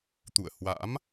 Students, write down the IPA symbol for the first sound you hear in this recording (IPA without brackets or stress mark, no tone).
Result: t̪